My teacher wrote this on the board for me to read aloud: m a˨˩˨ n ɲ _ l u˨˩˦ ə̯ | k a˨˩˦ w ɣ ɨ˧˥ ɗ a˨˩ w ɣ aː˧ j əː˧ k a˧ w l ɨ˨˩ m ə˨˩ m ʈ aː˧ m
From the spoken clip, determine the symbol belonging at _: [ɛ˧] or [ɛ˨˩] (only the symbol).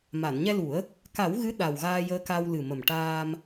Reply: ɛ˧